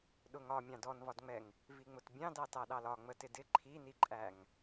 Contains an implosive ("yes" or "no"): yes